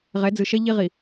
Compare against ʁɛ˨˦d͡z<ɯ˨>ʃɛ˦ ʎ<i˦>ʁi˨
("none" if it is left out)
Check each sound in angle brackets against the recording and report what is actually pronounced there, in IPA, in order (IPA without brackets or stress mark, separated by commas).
ɯ˨, i˦